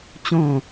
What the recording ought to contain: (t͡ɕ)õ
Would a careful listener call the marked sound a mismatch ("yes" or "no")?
no